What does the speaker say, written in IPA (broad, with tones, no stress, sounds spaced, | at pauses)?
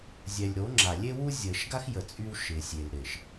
zʲ ɛ˨ lʲ ɾ o˨˦ ŋ͡ǁ a˨ lʲ e˦ w u˦ zʲ əː˨ ʃ ɡ a˦ x j ə˨ t͡sʼ y˦ w ʃ ɪː˨ sʲ e˨ l ɾ ɪː˨ ʃ